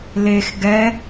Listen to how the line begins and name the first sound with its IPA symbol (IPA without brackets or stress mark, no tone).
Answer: l